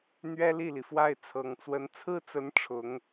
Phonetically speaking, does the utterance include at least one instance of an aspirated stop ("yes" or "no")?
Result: yes